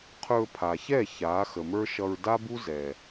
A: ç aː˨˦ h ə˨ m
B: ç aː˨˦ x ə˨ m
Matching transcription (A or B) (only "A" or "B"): B